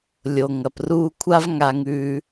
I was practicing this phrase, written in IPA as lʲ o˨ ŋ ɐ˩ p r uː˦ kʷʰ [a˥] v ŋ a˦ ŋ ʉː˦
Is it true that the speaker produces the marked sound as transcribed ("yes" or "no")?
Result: yes